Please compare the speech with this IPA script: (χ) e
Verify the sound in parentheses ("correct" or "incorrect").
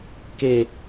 incorrect